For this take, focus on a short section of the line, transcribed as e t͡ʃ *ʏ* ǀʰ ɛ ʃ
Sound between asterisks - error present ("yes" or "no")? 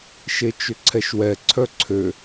no